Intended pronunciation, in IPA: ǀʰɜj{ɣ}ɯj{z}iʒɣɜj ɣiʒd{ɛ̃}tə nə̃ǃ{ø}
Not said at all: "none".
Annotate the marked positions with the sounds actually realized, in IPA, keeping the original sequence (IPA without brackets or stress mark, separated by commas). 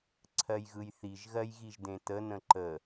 ɣ, θ, ẽ, ə